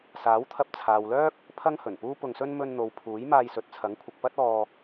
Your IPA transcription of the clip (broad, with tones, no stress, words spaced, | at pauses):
saː˨˥wt̪ʰɐ˧p̚ t͡sʰaː˨wlœː˥k̚ | pʰɐ˥ŋhɵ˨˩npuː˥ pʊ˧ŋsɵ˥n mɵ˧nn̪o˨w pʰuː˨˥j maː˧jsɵ˨t̚t͡sʰɐ˨˥ŋkʷʰɪ˨k̚ pɐ˥t̚ɔː˧